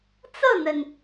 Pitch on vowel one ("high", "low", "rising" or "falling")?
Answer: falling